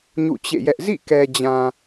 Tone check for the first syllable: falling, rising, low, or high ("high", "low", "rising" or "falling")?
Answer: falling